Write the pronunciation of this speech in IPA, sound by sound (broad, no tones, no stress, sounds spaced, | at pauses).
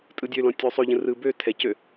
tʼ ɯ dʲ ø l ɔ̃ tʲ ø sˤ ø ʎ ə̃ r ɯ b ø tʰ ɛ c ø